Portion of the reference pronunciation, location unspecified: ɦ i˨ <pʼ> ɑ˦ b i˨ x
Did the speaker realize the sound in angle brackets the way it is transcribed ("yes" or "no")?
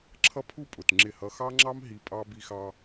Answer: yes